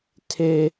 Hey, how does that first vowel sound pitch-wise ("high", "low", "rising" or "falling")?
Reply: high